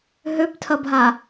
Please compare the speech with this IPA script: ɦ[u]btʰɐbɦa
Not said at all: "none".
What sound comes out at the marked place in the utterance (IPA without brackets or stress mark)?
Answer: ø